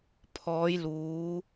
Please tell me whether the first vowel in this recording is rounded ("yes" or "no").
yes